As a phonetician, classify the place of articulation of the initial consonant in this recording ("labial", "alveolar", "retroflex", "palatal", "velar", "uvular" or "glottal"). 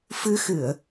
labial